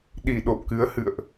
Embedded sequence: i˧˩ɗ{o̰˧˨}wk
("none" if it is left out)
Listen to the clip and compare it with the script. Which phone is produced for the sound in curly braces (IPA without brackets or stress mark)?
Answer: o̰˧˨